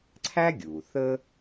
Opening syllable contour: high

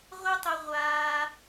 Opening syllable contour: high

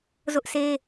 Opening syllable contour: high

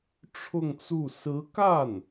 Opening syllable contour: falling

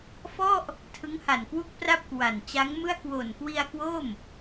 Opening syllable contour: falling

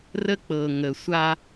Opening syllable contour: high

